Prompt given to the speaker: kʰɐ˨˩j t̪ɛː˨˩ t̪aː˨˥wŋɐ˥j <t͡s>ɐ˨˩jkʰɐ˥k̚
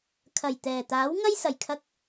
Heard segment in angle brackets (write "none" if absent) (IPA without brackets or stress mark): s